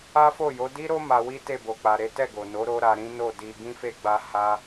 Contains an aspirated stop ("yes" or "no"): no